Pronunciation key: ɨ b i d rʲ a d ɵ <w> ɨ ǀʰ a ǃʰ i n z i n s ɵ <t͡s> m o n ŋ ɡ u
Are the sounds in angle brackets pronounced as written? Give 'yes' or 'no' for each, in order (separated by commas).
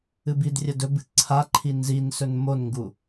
no, no